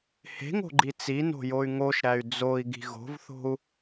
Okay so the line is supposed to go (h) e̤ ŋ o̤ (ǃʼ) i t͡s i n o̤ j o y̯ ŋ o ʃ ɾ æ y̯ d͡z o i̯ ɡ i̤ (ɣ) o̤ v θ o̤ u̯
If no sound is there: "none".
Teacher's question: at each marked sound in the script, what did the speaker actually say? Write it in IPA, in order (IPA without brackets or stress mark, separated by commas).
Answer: h, ɡ͡ǃ, ɣ